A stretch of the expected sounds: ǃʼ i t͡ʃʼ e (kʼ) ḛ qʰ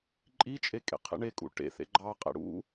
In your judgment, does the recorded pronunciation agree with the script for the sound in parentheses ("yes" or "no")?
yes